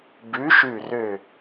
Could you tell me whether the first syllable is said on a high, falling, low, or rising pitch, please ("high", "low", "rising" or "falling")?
rising